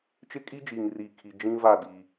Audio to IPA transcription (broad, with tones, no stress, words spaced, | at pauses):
t͡ʃɪ˦kʼi˦d͡ʒiː˨ŋriː˨ kʰi˨ d͡ʒĩ˦ va˦˨di˨